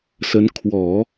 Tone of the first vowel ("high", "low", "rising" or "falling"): rising